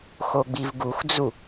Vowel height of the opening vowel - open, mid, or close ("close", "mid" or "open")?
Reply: mid